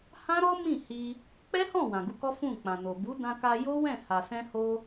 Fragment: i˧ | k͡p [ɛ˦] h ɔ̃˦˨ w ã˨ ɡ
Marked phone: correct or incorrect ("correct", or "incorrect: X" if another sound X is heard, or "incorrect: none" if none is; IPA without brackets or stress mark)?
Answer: correct